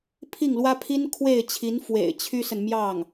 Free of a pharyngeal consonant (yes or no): yes